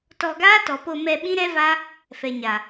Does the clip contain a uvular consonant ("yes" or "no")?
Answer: no